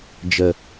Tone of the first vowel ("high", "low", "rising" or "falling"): low